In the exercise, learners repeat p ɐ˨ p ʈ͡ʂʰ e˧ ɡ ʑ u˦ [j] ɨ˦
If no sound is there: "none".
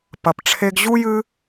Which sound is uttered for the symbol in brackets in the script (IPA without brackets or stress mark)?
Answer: j